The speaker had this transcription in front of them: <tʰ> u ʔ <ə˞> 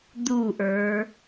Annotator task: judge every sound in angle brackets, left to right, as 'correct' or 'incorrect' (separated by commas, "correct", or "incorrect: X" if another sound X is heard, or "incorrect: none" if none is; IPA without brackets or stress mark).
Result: incorrect: d̪, correct